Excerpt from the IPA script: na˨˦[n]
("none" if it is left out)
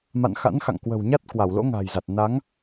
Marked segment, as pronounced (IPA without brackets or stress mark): ŋ